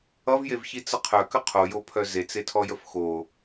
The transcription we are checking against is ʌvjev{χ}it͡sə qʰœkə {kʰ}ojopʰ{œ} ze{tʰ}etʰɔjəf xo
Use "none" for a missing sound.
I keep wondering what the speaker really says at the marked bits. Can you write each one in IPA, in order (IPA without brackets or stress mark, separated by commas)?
ç, qʰ, œ, t͡s